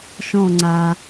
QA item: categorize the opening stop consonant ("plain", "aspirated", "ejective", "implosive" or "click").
click